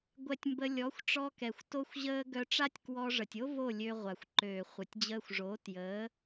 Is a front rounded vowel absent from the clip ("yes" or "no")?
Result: no